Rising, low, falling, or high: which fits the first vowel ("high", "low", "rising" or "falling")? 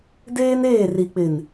high